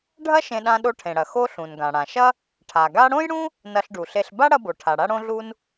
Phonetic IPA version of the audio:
ɖʱ ɐ˥ ʃ ẽ˧ ɗ ã˧ ɗ o˧ ʈʰ ẽ˩ ɽ ɐ˩ x o˧ ɬ ũ˩ n ɡ ã˩ ɽ ã˩ ʃ ɐ˥ | ʈʰ a˩ ɡ a˥ ɽ õ˥ j ɽ ũ˥ | n ɐ˧ ɬ ɖ u˩ ɬ e˧ ɬ b a˥ ɽ ɐ˧ b o˩ ʈʰ a˩ ɽ a˧ ɽ õ˥ ɮ u˥ n

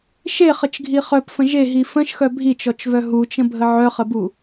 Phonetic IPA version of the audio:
ʃ e χ ə t͡ʃ ɡʱ i χ œ p f ə̃ ʒ e ɦ i f ə̃ ʃ x œ bʱ i t͡ʃ ɔ t͡ʃ v œ ɦ u t͡ʃ ə̃ bʱ ə ʕ œ χ ə b u

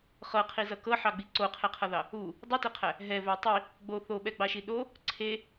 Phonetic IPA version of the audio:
χ ɤ qʰ i z ʌ k ɤ ħ ɑ ɡ͡b i ǀ o qʰ ɛ qʰ ʌ ð ɑ | u | dˤ i t e qʰ æ | ɦ ɛ v æ tˤ i | ɡ͡b o θ o ɓ ɛ ɡ͡b ɑ ʃ i ɗ o | ǀʰ e

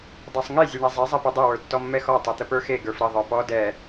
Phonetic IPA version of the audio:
dˤ ɛ sˤ ŋ e zʲ e ɳ ɛ zˤ ɛ zˤ ɛ p ɛ dˤ ɛ w ə˞ tː ɔ mː ɛ x ɔ tˤ ɛ t̪ ə p ə˞ x e ɡ ə˞ f ɾ ə ðˤ ə˞ p ɔ d ɛ

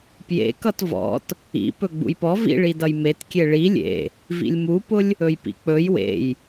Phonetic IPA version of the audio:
p j ḛ k ʌ t v ɔ̰ t | ḭ p ɵ ɡ͡b ṵ j p ɔ v ḭ ɭ i d ʌ j m e t kʲ e ɭ i lʲ ḛ | v ḭ lʲ m u p ʊ lʲ | ɵ j p ḭ k͡p ɵ j w ḛ j

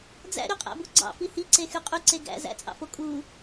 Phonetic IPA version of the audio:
d͡z æ̰ ɾ y qʼ æ̰ b u ɡ͡ǀ ɑ̰ f i h i ǀ e x y qʼ y ǀ e ɡ æ̰ z æ̰ t͡sʼ ɑ̰ f o kʼ u

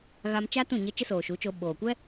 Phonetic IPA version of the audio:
ɣ a˧ m t͡ʃ a˦ t ũ˦˨ ɲ ə˧ t͡ʃ ə˦ s oː˨ ʃ u˨˦ t͡ʃ o˧ ɓ oː˨ kʷ ɛ˦

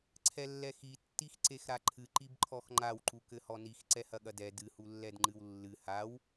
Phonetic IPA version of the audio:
ǀʰ ɛ lː ɛ x i tː i x ǀ e x ɾ a ǃʰ ɨ ǃ i b ǃʰ ɔ x ŋ͡ǃ a w ǃ u k ɘ h ɔ n i x ǀ ɛ h ɐ ɠ ɐ d ɛ d ɨ h u lː ɛ d ŋ͡ǃ ɨ w lː ɨ h a w

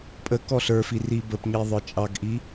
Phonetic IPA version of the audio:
pʼ ə k ɔ ɬ ə˞ f i r i b ə p ɲ i ðˤ ə˞ t͡ʃʼ ɑ ɡ ʔ i

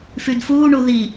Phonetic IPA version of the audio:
f y d f uː ɳ u ð i

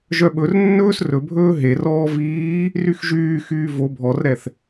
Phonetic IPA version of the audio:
ʒ œ ɓ ɵ r nː ɵː s r ɵ bʱ ɵː ɦ e r ɔː v iː | r y x ʒ yː x yː v o bʱ ɔ r ɾ ɛ θ

